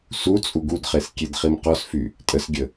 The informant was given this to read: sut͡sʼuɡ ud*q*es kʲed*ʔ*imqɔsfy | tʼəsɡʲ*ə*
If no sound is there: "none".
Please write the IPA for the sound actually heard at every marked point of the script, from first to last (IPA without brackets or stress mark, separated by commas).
χ, χ, ə